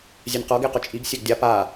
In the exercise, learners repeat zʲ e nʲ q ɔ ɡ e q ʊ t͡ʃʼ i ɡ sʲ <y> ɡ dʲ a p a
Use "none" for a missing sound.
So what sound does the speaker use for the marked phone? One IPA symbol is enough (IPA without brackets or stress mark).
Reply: e